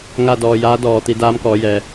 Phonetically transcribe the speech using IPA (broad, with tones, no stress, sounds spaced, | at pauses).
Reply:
ŋ a˥˨ d ɔː˧ j aː˧˥ d ɔː˩ t̪ i˧ d aː˧˥ m k ɔː˩˧ j ɛː˩